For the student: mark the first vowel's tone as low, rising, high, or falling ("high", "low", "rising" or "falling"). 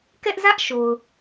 high